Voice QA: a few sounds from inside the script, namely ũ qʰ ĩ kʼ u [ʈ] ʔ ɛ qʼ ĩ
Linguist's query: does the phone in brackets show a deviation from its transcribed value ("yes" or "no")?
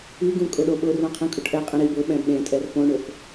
no